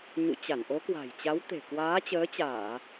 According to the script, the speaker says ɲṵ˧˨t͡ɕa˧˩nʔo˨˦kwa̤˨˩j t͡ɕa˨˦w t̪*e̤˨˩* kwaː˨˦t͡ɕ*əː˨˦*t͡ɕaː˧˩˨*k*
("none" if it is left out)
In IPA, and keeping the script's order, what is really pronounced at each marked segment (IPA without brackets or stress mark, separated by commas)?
e̤˨˩, əː˨˦, none